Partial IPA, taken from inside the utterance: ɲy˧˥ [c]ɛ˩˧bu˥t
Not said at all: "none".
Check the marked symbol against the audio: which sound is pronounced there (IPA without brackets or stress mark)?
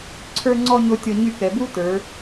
k